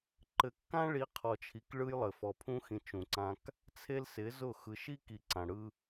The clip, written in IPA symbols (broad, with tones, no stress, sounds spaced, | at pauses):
ǃ ɘ˨ kː ã˦ ɭ i˨˦ qʰ ɔ˨ t͡ʃʰ i˨ k ɭ ɯ˦ j lˠ ɘ˨ f ɔ˨ pʰ ũ˦ x ĩ˨ t͡ʃ ũ˨ ǀ ã˦ k | t͡sʰ e˦ l s ɪ˨˦ z ʊ˦˨ x ɯ˨ ʃ i˦ k i˨ ǀ ã˨ ɽ ɯ˦